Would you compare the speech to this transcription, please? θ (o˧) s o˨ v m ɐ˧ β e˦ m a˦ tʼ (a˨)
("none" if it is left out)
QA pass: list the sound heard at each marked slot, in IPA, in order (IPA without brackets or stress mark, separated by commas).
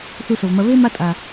u˧, a˨